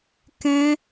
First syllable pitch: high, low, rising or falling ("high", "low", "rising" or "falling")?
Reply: high